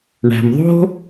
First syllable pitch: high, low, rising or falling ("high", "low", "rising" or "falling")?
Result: low